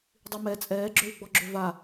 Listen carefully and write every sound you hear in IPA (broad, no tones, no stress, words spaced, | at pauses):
dˤimɛ t͡sʼɛːɡ͡ǁøwɡ͡bɔ ɡ͡ǁøva